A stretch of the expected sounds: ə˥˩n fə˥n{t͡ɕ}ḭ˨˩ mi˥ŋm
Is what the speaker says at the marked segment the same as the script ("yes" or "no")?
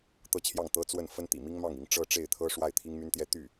no